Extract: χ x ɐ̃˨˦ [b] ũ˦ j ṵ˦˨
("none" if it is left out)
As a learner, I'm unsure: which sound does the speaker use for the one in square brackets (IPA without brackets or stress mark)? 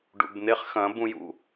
b